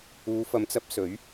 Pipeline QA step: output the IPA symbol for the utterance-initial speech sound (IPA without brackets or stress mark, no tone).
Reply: uː